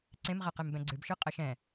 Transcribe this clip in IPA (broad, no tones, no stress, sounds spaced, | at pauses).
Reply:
ǀ ẽ m ʁ ɛ q e m b ɛ̃ ɡ͡ǀ ɨ b ʃ ɯ qʼ ə ʃ ɛ̃